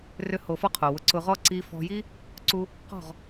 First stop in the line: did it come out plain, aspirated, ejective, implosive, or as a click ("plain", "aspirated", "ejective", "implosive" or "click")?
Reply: aspirated